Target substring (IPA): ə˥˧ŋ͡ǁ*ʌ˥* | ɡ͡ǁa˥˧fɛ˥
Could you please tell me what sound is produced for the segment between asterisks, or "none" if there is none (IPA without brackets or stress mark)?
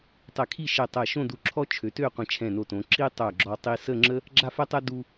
ə˥